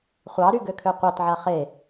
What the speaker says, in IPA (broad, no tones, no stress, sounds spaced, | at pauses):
χʷ ɑ ɾ y ɡ ø kʰ ø qʷ ɑ t ʕ a χ e